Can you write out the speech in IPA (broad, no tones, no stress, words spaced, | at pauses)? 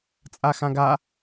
t͡sʼaxãɡa